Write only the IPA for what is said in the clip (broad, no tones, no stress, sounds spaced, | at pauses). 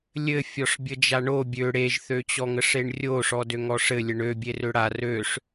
lʲ ɘ fʲ ɔ ʂ bʲ ə d͡ʒ a ɳ o bʲ ø ɽ e ʒ θ ø t͡ɕ ɔ ŋ ə ʂ e ɳ rʲ o ʂ ɔ d ø ŋ ɔ ʂ ɘ lʲ ə ɳ ø bʲ e r ø ɽ a r ø ʂ